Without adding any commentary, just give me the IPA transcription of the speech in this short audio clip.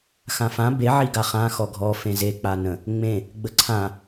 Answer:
xãfã be ʕiɡaχã xɔɡʱɔ fẽze k͡panə̃ | ŋ͡mẽ | ɡ͡bəǀʰã

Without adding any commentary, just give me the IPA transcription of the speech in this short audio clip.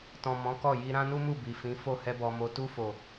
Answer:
tɔ̃˨ mɔ̃˨˦kɔ˦˨ji˧ ɾã˦nu˦mu˦˨ bi˨fĩ˨˦fo˦˨ hɛ˧bɔ˨mo˨˦ tu˧fo˨

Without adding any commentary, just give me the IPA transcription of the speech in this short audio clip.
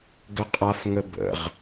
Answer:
ɡəqʼafŋə bə̰ʁ

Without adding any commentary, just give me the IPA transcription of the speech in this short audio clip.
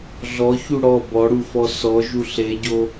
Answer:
ɮɔçu ɽɔ bɔɽufɔ sɔʒu ɬeɟo

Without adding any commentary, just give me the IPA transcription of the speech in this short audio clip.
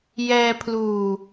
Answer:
jɛː˧pʰluː˨˩

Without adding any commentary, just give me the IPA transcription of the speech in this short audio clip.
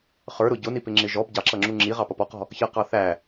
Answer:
χə˞ɾʊ ɟʊnipɪŋ͡ǁɪ ʒɔb ɟɑǁʌŋ͡ǁu ŋ͡ǁiʁɑpʌp ɔqɔ̤ | çʌqɑ θæ

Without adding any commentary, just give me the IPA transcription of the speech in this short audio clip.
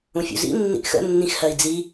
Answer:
ũfʲṵzḭ nːḭʔxə̰ nːĩxhɜi̯d͡zi

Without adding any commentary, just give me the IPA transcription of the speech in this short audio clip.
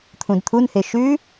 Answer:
t̪ʰũdt̪ʰunhe ʃʉ

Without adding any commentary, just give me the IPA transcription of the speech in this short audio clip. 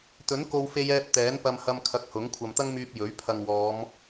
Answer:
t̪ɵ˨˥nko˧w fe˧jɛː˧p̚ t̪ɛː˨˥npɐ˧m hɐ˧m kʰɐ˧k̚hʊ˨˥ŋ kʷʰɐ˨mt̪ɐ˥ŋmyː˧p̚ jɵ˨˥ɥ pʰɐ˨ŋwɔː˨˧m

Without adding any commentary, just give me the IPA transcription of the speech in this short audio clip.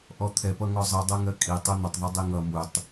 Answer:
ʔɔt̪ʰɛpʌ ŋɔzˤi dˤɜŋɜkʼi tˤun̪ətˤðˤu dˤiŋʌ mutˤ

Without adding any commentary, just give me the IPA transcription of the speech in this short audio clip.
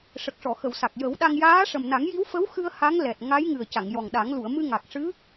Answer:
ʂə˨˩k̚ʂɔ˨˩˨xə˨˩˨w sa˨˩k̚ jə˨˩˦wɗa˧ŋ jaː˧˥ʂə˨˩mna˨˩˦ŋji˧˥w fə˧˥wxɨ˧ə̯ ha˧˥ŋlɛ˨˩t̚ ŋa˧˥jŋɨ˨˩ə̯ ca˨˩˨ŋjɔ˨˩ŋɗa˨˩˦ŋ lu˨˩˨ə̯mɨ˧ŋa˨˩k̚ ʂɨ˧˥

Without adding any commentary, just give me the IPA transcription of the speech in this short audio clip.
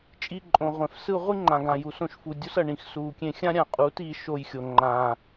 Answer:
t͡ʃʼi˧ǃʼõ˨ʁʷɛ̃˨f sɯ˧ʁʷi˦ ŋ͡ǃã˨ɡã˨ju˨s õ˧ʃfu˨dʲo˦sʌ˨ ɳĩ˨xsuː˨kʲẽ˧ xʲã˦ɾʲã˨qʼuː˨˦t iː˧ʃo˧jxʲo˨ ŋ͡ǃã˨

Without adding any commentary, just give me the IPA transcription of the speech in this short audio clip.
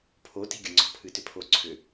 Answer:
pʰo ti̤ɡʲʊŋ͡ǀɔ̤ pʰɨtʏpʰo ǀʰʏ

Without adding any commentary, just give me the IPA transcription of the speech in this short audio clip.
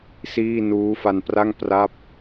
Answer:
siː˥˩ nuː˦˥fa˧npra˥˩ŋ pra˥˩p̚

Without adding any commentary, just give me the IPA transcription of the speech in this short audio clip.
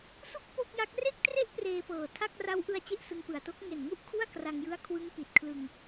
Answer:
su˥˩k̚ po˥˩k̚ja˦˥k̚ re˥˩k̚tre˥˩ʔ preː˧pɤː˨˩tʰa˥˩k̚ ra˦˥wʔɯ˧a̯ t͡ɕe˥˩ʔsɯ˧ŋpɯ˨˩a̯to˦˥k̚ ŋe˨˩nŋu˦˥ʔ kʰu˥˩a̯kra˧ŋjɯ˦˥a̯ kʰwɯ˦˥ŋpi˨˩t̚ kʰlɯ˧ŋ

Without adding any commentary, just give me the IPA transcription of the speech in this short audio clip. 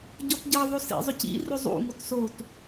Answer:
ɟɔtɟʌðˤo sḭzˤɵcḭrɵ zˤṵŋot sot

